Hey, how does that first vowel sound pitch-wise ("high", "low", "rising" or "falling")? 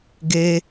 high